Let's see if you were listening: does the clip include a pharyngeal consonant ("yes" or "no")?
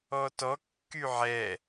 yes